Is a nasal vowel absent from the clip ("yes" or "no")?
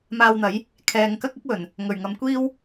yes